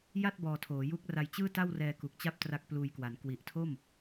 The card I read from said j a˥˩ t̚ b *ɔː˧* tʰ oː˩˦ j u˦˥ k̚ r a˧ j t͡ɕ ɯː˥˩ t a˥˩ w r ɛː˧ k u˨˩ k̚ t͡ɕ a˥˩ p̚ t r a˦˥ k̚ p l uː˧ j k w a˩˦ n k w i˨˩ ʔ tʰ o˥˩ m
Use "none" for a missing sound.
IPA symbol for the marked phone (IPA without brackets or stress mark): ɔː˧